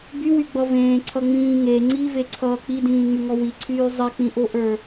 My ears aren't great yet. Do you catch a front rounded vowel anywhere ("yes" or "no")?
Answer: yes